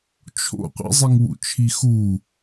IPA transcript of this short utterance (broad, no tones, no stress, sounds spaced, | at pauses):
t͡ʃʰ o̰ qʷ ḭ zˤ i ŋ w ṵ t͡ʃʰ i x u